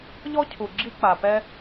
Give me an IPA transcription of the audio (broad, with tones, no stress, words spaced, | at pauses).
ʎɔ˥cʰu˨ɡ͡ǁi˦ k͡pa˨pɛ˦